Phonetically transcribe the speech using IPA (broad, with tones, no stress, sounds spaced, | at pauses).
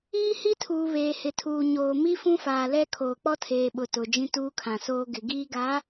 iː˦ h i˦ tʰ uː˨ β eː˨ h ɪ˨ tʰ uː˨ ɲ oː˨ m i˦ f ũ˦ f aː˨ l ɛ˦ kʰ oː˨ k͡p ɔ˦ tʰ eː˨ ɓ ʊ˨ t ʊ˨ d͡ʒ ĩ˦ t uː˦ kʰ ã˨ s oː˦ ɡ ɪ˨ ɡ iː˦ ɡ a˨˦